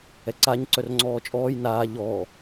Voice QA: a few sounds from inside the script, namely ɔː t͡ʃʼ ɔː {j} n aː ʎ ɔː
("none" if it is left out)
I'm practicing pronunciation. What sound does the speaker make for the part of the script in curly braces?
j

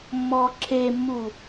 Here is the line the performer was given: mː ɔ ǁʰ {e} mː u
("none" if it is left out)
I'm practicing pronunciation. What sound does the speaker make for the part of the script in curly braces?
e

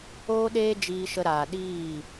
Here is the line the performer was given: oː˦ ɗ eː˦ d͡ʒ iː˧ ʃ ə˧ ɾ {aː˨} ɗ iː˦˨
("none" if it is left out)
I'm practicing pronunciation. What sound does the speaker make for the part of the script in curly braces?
aː˨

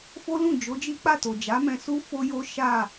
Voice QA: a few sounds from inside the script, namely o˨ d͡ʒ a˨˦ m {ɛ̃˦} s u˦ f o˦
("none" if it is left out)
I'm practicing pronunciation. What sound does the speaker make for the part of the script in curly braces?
ɛ̃˧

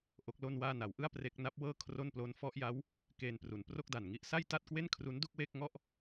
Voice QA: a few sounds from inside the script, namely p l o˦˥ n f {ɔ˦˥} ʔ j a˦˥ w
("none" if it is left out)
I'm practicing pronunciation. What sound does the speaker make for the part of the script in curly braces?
ɔ˦˥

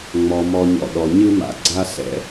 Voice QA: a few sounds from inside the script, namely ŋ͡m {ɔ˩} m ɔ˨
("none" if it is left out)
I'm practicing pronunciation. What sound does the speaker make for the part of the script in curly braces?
ɔ˩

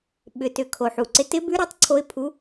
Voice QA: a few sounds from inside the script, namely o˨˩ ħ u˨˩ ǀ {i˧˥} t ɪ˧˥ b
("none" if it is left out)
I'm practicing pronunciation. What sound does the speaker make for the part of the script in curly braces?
ɪ˧˥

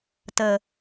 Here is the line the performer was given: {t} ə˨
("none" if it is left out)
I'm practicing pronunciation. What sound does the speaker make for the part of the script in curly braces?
t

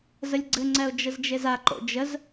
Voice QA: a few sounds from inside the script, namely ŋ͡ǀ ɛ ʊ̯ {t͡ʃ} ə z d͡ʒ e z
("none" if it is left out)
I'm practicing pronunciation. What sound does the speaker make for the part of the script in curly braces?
d͡ʒ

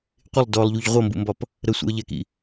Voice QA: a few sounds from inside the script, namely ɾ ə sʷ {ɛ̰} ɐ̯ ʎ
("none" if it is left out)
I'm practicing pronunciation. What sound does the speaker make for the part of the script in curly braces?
ɛ̰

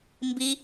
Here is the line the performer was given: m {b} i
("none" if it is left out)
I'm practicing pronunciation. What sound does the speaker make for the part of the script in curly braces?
b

